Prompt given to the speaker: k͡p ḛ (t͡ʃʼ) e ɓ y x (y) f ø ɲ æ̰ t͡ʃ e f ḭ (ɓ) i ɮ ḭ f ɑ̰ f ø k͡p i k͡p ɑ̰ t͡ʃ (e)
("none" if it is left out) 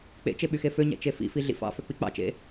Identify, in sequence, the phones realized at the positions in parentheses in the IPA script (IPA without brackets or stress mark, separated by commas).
t͡ʃ, e, f, ḛ